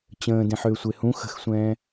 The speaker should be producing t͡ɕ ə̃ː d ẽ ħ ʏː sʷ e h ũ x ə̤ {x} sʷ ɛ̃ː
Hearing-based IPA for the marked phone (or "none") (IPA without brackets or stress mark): x